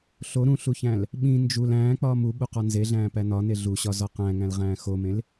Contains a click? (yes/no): no